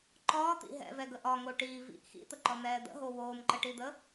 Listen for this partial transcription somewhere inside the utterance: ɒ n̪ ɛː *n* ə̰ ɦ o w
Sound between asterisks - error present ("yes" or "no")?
yes